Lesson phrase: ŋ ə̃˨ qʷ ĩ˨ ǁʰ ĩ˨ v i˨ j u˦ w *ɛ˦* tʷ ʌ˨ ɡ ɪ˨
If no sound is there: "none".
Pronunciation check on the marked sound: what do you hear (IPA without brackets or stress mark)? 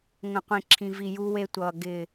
e˦